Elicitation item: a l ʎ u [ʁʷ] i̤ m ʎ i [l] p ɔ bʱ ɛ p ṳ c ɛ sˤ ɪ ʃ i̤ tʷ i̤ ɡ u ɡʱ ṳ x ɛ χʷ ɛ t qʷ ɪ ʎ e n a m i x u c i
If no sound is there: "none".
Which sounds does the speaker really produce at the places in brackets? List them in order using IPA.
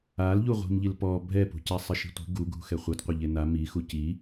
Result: ʁʷ, l

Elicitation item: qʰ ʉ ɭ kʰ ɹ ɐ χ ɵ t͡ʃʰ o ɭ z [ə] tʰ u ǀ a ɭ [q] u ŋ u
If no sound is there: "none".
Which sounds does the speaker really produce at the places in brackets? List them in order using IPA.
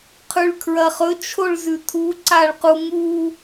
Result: ʉ, q

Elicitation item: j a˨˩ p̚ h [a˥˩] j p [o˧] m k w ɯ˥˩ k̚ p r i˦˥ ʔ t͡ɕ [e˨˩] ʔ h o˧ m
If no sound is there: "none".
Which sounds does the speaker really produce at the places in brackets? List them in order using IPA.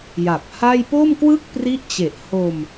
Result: a˥˩, o˥˩, e˨˩

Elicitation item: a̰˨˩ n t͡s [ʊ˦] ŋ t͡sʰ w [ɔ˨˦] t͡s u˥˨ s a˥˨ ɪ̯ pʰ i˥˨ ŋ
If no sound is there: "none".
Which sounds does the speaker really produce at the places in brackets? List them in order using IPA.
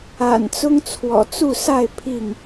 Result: ʊ˦, ɔ̰˨˩

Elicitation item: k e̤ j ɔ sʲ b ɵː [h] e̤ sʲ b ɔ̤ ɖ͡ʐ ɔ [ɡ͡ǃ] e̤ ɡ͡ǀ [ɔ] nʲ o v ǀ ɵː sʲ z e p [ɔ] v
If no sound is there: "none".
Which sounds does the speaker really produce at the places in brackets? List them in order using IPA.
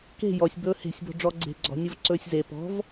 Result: h, ɡ͡ǀ, ɔ̤, ɔ̤

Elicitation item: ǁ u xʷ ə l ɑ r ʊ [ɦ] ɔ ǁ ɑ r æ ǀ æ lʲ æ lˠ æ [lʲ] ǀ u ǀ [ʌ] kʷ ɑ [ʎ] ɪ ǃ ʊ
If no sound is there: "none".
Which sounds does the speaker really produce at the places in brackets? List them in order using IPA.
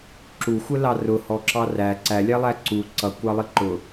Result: h, none, ʌ, lˠ

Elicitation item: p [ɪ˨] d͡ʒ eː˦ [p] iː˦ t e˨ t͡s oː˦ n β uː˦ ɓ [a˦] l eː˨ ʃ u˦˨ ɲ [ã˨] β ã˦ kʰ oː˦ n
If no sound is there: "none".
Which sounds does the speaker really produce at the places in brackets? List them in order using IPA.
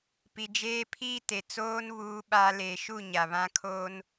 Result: i˨, pʰ, a˦, a˨

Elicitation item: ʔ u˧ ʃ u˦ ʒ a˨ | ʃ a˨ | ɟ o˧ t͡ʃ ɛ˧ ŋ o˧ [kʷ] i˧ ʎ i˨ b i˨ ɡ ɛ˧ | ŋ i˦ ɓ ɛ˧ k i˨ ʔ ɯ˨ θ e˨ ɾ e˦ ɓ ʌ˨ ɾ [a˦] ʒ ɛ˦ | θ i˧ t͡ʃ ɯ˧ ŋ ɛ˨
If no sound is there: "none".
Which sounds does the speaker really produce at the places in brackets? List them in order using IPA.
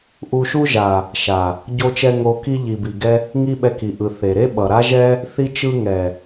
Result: k, a˦

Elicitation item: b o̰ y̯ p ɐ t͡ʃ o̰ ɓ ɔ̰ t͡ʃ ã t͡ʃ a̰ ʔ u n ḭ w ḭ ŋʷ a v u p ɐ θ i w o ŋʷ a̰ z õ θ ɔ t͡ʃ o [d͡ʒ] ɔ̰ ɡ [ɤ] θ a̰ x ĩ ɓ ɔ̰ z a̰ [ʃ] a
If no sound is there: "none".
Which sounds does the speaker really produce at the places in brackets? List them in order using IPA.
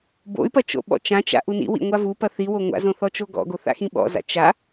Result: ɡ, o, t͡ʃ

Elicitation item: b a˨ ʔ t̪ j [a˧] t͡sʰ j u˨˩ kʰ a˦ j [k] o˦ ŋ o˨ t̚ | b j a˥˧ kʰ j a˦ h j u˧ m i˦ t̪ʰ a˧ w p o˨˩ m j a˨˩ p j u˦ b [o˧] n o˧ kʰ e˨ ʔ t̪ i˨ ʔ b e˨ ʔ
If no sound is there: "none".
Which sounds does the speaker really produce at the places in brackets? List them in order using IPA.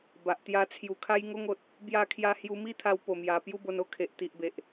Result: a˧, ŋ, o˧

